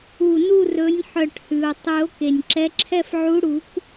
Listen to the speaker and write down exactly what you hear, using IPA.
u˧˩ n u˥˧ r ɵ˨˥ nʲ ħ œ˧˩ ʈ h ʉ˩ o̯ tˤ ʉ˨˩˦ o̯ k e˩ nʲ ǁ ɛ˨˥ ǁʰ ɛ˥˧ f ʕ u˨˥ ɽ u˨˩˦ k

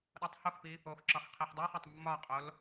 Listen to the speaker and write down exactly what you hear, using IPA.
ɗ ɔ tˤ h o x p i | o x ǁ ɒ x qʰ i ħ dˤ i χ ɒ tˤ mː ɒ qʼ o l

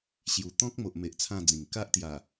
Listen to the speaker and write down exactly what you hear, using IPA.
ɕ j u˨˩ t̪ ɔ̃˦ k̚ m o˨ ʔ m e˨ ʔ t͡sʰ ã˥˧ d͡z ĩ˨˩ ŋ k a˦ ʔ t̪ j a˨˩

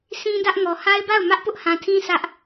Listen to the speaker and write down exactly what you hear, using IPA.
sʰ ĩ˦ d ä˦ ʔ ŋ ɔ˨ h a˦ ɪ̯ b a˦˨ ʊ̯ m ä˦ ʔ p ʊ˦ ʔ h ã˨ tʰ ĩ˦ sʰ ä˦ ʔ

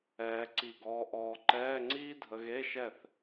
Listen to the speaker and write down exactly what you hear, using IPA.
ɛː˧ ǀ i˧˩ ɡ ɔː˧ ʔ ɔː˧ ǃ ɛː˧˥˧ ŋ͡ǀ iː˥ dʱ ə˧ ɣ e˧˥˧ ʃ ɛ˥˨ θ

